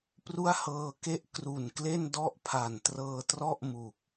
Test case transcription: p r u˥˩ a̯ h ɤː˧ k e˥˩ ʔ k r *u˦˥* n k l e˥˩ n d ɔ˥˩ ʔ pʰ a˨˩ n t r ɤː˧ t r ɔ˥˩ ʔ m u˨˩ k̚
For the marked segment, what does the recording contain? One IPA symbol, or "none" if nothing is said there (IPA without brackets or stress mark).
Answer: u˨˩